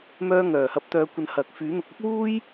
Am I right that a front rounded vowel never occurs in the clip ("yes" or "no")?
no